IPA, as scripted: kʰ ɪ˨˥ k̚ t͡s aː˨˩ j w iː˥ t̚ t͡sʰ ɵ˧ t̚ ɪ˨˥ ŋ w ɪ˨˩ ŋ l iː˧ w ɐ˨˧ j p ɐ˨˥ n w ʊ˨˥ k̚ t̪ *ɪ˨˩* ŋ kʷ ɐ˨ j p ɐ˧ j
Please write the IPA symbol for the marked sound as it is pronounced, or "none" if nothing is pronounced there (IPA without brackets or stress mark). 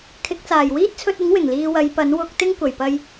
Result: ɪ˥